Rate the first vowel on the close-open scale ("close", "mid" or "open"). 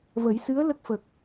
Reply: mid